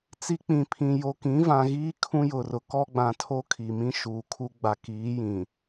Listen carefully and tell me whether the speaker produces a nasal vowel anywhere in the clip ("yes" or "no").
yes